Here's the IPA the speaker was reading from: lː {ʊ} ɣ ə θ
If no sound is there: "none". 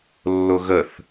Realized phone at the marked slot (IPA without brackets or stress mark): ʊ